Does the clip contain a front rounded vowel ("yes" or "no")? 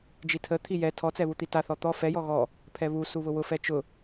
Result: no